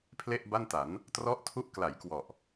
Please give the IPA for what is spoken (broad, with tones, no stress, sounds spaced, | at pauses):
pʰ l e˥˩ ʔ b a˥˩ n t a˩˦ n | t r ɔ˦˥ ʔ tʰ u˦˥ ʔ k l a˩˦ j k w ɔ˨˩ ʔ